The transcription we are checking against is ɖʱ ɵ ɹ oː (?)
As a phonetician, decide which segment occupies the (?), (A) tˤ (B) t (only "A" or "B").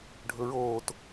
B